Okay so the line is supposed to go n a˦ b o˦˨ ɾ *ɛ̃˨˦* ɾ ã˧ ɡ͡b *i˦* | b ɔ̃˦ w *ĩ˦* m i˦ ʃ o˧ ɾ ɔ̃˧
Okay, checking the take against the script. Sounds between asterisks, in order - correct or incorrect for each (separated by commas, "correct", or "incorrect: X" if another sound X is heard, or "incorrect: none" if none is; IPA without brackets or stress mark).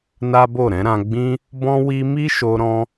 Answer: correct, incorrect: ĩ˦, incorrect: i˦